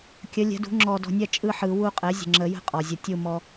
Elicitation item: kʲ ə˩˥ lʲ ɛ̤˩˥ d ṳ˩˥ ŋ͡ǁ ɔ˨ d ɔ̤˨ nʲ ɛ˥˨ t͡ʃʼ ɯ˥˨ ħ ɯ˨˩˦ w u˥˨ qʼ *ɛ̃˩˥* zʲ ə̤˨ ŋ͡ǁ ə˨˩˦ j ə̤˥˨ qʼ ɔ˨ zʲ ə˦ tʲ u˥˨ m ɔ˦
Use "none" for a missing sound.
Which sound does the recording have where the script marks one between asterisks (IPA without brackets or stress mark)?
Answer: ɛ˩˥